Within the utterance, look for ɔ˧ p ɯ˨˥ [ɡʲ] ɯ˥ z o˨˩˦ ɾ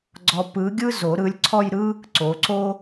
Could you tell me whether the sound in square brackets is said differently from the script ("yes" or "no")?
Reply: no